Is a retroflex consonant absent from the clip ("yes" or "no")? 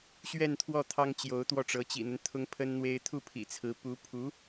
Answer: no